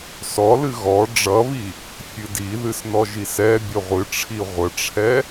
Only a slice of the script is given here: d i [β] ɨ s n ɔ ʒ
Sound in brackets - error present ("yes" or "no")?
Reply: yes